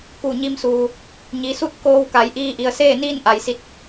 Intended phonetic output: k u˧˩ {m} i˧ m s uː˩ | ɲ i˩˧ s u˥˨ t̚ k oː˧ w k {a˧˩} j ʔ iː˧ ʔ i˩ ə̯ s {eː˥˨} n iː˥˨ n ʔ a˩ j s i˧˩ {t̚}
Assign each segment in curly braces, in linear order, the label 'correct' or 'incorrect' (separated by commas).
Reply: incorrect, incorrect, correct, correct